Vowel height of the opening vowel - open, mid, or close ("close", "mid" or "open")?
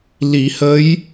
close